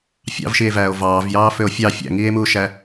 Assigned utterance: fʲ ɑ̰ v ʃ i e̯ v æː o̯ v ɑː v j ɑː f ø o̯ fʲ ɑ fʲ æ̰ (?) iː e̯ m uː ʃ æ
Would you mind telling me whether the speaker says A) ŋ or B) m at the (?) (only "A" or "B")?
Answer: A